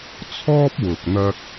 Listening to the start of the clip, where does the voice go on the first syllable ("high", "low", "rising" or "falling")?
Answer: high